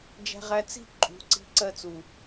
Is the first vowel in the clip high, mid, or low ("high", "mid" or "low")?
low